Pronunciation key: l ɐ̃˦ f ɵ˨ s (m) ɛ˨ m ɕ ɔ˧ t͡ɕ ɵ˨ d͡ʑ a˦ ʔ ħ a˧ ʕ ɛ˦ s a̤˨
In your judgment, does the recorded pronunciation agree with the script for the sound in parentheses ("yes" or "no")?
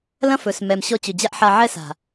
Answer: yes